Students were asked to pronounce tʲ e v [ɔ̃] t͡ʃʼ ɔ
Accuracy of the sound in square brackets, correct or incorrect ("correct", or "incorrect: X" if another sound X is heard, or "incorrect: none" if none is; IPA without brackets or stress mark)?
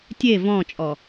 correct